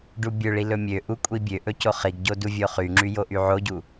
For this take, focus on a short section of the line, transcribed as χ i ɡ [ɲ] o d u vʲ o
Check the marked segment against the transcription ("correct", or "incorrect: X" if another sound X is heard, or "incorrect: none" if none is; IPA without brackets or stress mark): incorrect: ɟ